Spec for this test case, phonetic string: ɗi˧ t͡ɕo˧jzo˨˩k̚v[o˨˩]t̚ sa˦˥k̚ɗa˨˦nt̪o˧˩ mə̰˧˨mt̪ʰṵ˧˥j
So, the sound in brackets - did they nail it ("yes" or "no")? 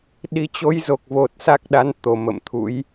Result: yes